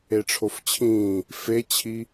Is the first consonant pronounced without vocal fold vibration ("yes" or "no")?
yes